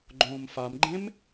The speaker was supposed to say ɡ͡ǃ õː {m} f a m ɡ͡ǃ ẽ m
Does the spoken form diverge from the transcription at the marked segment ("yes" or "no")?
no